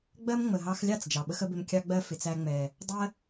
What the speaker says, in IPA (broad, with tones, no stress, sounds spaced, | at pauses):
ɡ͡b ɜ˦ m ŋ͡m ə˨ ɦ ɑ˧ x lʲ ɑ˦˨ t͡s d͡ʒ ɑ˨ ɓ ə˦ x ə˦ b ɪ˧ m kʲ ɑ˦ ɡ͡b ɜ˦ f ɪ˨ t͡s æ˧ ŋ͡m ɛ˨ | dˤ ɜ˦